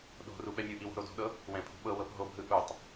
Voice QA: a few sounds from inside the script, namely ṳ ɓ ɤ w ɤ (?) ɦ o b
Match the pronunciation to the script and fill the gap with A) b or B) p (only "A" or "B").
B